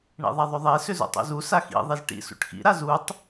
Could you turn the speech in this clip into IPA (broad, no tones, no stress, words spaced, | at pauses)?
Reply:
ɳḭðˤaðˤʏðˤe sʏzṵtˤṵzu saxḭ ðˤizʈḭ sṵʈxḭ ɾazutˤ